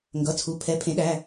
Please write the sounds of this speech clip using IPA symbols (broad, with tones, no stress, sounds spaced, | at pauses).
ŋ ɡ ʌ˩˧˩ t͡sʰ u˩˧˩ pʰ ɛ˩˥ pʰ ẽ˩˥ ɗ æ˩˧˩